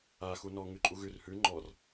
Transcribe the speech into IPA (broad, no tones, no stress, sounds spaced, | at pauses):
a x u n ɔ ŋ ʉ ǃʼ u ɣ ʉ r h ʉ ŋ͡ǃ ɔ r